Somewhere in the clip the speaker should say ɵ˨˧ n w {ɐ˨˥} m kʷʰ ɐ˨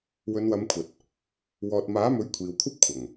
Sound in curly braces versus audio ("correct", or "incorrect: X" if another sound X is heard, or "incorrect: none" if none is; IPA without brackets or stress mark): incorrect: ɐ˨˧